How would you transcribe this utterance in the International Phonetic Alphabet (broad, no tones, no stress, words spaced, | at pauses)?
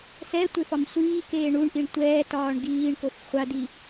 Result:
sɛtʷe fɒmsʷiːkeː ɳuɳʔiɳ tʷɛːtɒːɳ ɡiːɳkof χʷadi